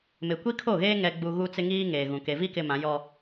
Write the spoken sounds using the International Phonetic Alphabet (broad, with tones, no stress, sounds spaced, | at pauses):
m ɪ˨ kʷ i˦ kʰ o˦˨ ɣ eː˦ ŋ ɛ˨ ɡ͡b u˨ ɣ u˦ t͡s ɪ˦ ŋ iː˦ ŋ eː˨ ɣ ũ˨ k e˨ v i˦ k ɪ˦ m ã˨˦ j ɔ˦